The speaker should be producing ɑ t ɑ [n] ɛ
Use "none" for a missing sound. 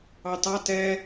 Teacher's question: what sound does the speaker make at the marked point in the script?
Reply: t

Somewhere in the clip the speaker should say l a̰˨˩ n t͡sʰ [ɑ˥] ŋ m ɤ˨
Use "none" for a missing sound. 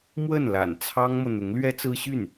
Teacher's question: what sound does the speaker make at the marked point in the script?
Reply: ɑ˥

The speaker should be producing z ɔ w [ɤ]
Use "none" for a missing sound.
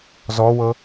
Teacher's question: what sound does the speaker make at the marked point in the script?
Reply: ɤ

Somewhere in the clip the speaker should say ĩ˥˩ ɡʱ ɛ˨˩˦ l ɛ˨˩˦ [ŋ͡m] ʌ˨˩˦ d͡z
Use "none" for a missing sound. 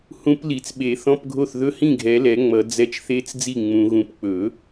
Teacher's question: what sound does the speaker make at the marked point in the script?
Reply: ŋ͡m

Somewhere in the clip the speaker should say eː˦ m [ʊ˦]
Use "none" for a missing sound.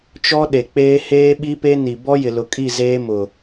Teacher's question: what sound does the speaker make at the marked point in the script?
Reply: ʊ˨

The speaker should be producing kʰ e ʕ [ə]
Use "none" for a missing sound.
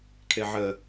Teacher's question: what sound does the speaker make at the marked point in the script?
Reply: ə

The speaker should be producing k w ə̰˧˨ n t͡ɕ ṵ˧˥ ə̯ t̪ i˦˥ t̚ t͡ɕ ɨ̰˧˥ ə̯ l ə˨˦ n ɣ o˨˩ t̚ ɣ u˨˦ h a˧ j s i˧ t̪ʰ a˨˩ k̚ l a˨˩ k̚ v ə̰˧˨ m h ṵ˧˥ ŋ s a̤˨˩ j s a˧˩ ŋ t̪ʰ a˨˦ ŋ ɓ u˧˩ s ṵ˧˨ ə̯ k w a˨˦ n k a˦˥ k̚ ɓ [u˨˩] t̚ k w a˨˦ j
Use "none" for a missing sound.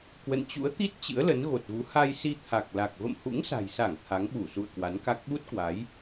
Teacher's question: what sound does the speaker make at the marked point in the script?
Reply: u˦˥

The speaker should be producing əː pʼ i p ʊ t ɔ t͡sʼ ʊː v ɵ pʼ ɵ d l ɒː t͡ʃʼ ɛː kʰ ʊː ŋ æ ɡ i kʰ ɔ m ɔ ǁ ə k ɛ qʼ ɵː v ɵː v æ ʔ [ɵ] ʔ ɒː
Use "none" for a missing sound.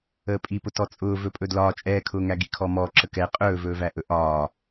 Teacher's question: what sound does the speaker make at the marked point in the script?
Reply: ɵ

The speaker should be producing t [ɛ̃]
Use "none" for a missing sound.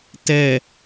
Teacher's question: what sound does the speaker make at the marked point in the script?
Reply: ɛ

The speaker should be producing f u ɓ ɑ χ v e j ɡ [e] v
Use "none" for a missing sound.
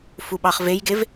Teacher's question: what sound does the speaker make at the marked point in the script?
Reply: e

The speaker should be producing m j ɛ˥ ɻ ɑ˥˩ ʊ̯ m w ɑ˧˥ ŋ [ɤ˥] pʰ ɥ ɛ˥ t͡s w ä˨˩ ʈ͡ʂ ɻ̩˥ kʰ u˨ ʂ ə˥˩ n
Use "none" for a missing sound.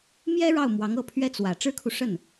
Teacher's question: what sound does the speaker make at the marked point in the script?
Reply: ɤ˥˩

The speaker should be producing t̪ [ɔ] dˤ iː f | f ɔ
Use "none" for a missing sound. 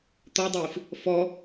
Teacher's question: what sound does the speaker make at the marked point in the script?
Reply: ɔ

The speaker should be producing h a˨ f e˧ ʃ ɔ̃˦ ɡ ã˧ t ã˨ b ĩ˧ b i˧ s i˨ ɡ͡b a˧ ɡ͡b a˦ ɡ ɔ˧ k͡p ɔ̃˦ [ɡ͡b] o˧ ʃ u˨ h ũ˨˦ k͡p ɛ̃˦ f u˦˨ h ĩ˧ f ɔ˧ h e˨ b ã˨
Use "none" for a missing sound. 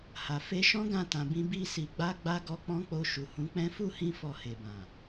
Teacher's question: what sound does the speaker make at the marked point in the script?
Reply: k͡p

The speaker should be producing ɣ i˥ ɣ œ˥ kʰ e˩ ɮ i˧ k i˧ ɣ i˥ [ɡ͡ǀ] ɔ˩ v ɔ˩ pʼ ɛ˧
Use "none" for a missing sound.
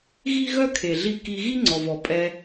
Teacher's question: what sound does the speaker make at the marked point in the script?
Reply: ŋ͡ǀ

